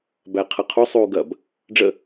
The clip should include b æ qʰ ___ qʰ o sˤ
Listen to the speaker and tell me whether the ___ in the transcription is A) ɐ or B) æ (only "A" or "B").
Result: A